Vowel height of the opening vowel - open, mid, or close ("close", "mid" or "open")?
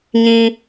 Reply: close